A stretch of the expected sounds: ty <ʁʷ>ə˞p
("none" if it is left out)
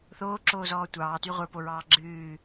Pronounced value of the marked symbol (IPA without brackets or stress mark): ʁʷ